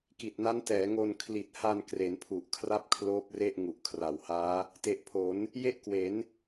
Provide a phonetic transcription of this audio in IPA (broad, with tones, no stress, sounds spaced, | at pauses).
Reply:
k i˨˩ t̚ n a˦˥ n t ɛː˩˦ ŋ o˧ n kʰ l i˨˩ t̚ h a˧ n k r e˩˦ n pʰ u˨˩ ʔ kʰ r a˥˩ p̚ kʰ l oː˦˥ p̚ r e˥˩ ʔ ŋ u˨˩ ʔ kʰ r a˨˩ w h aː˦˥ | t e˨˩ ʔ pʰ o˩˦ n | j e˥˩ ʔ k w e˩˦ n